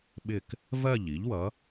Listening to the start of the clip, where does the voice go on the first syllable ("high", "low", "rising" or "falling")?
falling